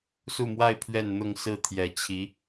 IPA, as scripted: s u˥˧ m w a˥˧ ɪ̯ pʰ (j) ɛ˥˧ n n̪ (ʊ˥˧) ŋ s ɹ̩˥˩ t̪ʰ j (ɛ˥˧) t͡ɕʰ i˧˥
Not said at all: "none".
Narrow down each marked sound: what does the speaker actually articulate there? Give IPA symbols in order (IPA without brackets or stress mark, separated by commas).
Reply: ɥ, ʊ˥˧, ɛ˨˩